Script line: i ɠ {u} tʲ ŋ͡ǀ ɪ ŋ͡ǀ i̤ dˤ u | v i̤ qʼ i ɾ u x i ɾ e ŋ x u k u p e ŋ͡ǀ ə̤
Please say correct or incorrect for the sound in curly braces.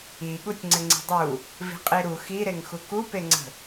correct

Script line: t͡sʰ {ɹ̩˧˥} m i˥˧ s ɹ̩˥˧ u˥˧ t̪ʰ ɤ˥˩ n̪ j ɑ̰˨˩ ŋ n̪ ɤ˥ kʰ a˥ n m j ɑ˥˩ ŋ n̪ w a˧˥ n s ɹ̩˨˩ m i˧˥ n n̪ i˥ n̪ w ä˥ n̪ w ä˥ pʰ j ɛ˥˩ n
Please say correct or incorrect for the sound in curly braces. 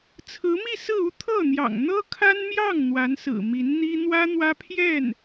correct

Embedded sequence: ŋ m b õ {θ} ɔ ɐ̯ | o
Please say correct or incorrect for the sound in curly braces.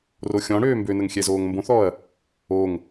correct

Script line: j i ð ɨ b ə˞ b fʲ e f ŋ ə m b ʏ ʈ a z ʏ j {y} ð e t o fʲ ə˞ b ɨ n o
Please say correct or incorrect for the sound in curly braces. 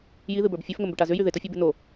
correct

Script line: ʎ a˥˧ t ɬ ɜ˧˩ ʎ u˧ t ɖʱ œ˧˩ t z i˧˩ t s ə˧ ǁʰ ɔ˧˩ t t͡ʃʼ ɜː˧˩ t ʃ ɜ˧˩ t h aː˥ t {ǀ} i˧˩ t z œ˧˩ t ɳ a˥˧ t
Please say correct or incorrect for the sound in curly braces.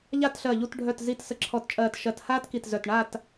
incorrect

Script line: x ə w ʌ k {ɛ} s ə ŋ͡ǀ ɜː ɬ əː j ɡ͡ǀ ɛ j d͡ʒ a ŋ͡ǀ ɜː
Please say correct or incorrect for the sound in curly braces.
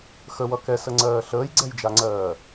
correct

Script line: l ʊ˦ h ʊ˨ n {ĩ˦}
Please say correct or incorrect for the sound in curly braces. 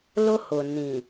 incorrect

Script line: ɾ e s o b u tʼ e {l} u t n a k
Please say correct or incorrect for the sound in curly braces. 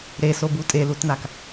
correct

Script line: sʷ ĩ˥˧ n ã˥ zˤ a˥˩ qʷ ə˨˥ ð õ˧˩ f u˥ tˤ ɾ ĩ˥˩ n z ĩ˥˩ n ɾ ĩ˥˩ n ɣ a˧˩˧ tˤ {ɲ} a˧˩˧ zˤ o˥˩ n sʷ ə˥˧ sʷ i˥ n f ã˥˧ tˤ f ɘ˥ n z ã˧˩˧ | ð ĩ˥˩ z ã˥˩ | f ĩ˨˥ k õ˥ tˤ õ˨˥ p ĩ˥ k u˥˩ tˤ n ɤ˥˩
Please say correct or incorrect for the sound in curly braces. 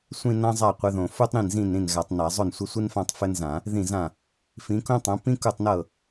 incorrect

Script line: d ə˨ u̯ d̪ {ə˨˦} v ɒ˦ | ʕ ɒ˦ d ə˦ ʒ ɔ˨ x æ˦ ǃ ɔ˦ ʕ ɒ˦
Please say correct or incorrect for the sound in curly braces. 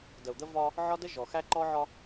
incorrect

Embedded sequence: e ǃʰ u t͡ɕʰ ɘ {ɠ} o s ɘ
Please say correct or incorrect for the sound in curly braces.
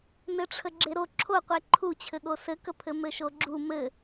correct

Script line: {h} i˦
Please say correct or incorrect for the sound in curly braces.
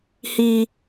correct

